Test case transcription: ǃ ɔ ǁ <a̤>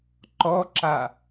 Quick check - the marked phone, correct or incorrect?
incorrect